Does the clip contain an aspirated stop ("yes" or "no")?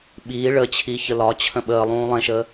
yes